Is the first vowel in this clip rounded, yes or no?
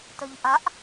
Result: yes